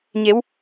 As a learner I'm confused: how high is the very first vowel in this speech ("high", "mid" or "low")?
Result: mid